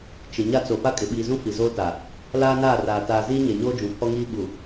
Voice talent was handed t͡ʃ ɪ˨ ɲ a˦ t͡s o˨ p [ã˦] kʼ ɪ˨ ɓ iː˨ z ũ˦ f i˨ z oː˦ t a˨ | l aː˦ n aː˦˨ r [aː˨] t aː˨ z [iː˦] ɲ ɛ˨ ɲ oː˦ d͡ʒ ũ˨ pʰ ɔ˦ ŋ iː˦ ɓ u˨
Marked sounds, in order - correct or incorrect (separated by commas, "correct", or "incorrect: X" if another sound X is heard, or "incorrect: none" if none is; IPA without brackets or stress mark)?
incorrect: a˦, correct, correct